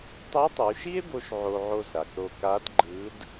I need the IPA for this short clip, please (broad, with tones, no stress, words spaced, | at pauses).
tˤe˧˥tˤu˩˧ʃi˥e̯bo˧ʃ ʕo˧ʕo˧zɾa˩kɾo˧ ka˧˥dɡ͡ǃɯ˧˥d